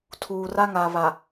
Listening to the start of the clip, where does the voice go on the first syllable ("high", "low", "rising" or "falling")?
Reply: low